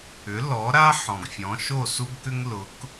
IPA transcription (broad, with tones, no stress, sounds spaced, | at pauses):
ʏ˩˥ l ɔ˩˥ ɾ a˥ ħ ɔ̃˩ ɡ fʲ ɔ̃˩˥ ʃ o˥˩ s u˥ ɡ k ʏ˥ ŋ l ʊ˩˥ k